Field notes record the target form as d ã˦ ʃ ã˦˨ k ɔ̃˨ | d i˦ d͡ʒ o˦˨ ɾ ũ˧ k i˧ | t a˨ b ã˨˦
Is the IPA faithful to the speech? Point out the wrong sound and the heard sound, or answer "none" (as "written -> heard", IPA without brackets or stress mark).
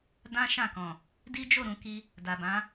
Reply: t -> d